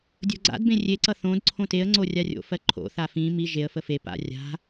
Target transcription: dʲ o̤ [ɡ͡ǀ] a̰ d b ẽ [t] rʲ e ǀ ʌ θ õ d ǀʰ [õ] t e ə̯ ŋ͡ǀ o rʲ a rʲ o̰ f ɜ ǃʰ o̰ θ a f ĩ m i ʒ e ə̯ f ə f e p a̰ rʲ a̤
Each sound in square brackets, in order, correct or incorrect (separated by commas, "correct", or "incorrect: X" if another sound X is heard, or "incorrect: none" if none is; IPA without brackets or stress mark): correct, incorrect: none, correct